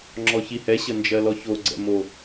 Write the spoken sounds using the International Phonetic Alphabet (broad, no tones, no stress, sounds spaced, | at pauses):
ŋ͡ǁ ɔ ç i h ɛ ɕ ə n d͡ʒ ɜ l ɔ ç o ɡ͡ǀ ɛ̰ m o